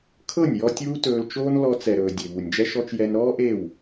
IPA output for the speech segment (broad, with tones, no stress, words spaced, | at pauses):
kʰɤ˦˨nʲjɔ˧ tʲuː˦tɵː˧lt͡ʃoː˦n lɔ˧t͡sɛ˨ɾɵː˨ dʲe˨βu˨nʲd͡ʒɛ˦ʃɔ˦t͡ʃ jɛ˧nɾɔː˦ʔe˦˨w